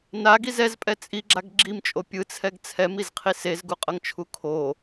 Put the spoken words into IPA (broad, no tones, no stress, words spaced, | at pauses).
naɡiz ɛzpʼɛ t͡sʼiɡ͡ǁaɡ ɡ͡ǁimt͡ʃʼo pʲɯt͡sʰɛɡ t͡sʰɛmizqʰi sezɡuqʼʌŋt͡ʃʰu kʰo